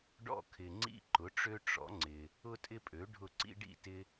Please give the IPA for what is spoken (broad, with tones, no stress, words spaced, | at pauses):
ɖɔ̰˥˩ kʰɪ˨ŋ͡ǀḭ˥ ǃʊ˩˥ʈ͡ʂø˥ ʈ͡ʂɔ̰˩˥ŋ͡ǀɪ˨ | ʊ˥tʼɪ˥pʼø˩˥ ɖʱʊ˥˩ ǀḭ˥ɖḭ˥˩ tɪ˥